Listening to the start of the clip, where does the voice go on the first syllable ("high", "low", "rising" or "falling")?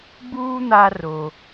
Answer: high